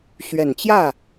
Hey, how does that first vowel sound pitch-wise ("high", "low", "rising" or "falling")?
low